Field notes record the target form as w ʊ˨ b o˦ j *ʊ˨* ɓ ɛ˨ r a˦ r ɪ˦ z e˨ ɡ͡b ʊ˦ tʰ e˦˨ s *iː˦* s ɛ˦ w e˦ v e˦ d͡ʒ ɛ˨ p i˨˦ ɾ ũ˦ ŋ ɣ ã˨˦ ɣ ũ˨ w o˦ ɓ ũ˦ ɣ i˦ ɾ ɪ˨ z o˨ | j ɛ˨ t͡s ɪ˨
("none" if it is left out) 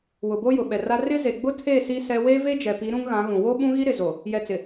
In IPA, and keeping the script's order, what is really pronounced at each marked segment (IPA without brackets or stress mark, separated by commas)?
ʊ˨, i˦